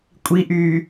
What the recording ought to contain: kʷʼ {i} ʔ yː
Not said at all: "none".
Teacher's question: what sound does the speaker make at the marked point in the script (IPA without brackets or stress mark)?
i